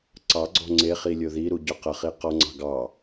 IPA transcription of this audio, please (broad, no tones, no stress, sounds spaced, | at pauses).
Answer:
ǀ ɑ ɡ͡ǀ ɔ̤ ŋ͡ǀ e χ i lʲ o ð i ɾ u ɟ ʏ q ə χ i q ɔ ŋ͡ǀ ɑ̤ ɡ ɑ